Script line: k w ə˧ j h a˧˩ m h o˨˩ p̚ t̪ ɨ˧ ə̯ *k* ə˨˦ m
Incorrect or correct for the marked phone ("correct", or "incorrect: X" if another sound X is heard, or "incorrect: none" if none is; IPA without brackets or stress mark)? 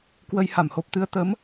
incorrect: t̪